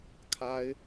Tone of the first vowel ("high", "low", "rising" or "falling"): high